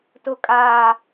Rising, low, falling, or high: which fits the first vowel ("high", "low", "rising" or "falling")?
low